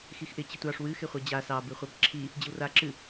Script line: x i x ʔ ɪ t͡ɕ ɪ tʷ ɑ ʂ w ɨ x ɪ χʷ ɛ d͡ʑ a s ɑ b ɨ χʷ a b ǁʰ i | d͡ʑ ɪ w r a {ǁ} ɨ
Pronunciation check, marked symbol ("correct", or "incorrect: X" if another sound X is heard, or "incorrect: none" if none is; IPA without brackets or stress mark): correct